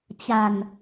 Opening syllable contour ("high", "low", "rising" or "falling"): low